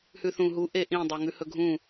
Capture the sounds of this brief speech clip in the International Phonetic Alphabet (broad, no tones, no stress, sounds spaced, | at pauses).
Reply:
h ʉ θ ũ ɦ u ʔ e ʔ ĩ dˤ e ŋ ʉ h ɵ ɡʱ ũ